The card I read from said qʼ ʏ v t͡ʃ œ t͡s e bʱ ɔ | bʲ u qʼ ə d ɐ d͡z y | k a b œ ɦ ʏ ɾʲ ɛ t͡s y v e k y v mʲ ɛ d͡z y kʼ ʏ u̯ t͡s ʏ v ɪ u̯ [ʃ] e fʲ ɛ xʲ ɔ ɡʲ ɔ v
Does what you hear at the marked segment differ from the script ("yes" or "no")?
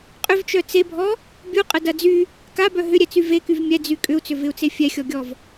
yes